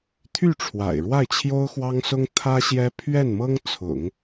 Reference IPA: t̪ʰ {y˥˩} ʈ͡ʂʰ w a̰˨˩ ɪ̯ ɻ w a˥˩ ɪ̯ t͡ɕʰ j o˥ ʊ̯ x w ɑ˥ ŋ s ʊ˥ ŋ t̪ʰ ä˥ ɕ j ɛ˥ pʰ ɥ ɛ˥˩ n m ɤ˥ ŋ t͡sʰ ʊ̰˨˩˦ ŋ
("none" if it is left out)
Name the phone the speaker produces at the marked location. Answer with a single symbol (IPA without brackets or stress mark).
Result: y˥˩